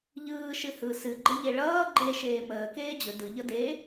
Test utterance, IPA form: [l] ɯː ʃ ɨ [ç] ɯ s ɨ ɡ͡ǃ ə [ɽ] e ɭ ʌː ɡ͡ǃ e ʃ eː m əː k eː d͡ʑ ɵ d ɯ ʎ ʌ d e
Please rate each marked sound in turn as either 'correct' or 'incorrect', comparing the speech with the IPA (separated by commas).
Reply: incorrect, incorrect, incorrect